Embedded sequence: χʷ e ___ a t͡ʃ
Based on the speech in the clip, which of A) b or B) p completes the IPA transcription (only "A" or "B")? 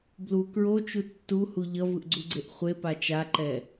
B